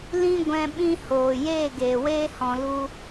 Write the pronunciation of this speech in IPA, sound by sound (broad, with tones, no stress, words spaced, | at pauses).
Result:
lĩ˦ ɡʷɛ̃˧ ɓĩ˦hoː˨ jeː˦˨ɡeː˨weː˦ hɔ̃˧lu˦